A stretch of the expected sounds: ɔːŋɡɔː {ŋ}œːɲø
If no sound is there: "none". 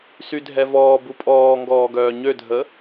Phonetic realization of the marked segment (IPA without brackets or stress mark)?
ɡ